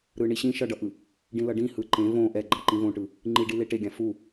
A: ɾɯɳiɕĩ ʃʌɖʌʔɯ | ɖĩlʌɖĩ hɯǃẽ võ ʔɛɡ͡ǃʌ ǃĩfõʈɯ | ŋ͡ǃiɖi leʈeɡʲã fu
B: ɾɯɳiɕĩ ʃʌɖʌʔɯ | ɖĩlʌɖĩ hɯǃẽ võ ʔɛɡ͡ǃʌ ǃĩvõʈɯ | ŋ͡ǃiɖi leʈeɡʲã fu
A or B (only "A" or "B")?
B